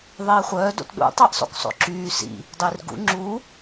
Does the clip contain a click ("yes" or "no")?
yes